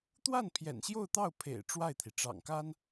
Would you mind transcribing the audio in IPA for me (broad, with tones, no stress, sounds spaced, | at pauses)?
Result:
t̪ w a˥˩ n pʰ j ɛ̰˨˩ n ɕ j o˥˧ ʊ̯ t̪ ɑ˥˩ ʊ̯ pʰ ḛ˨˩ ɪ̯ ʈ͡ʂ w a˥˩ ɪ̯ t̪ʰ i˩ ʈ͡ʂ ɑ̰˨˩ ŋ k a˥ n